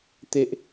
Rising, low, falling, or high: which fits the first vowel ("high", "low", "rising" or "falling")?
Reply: high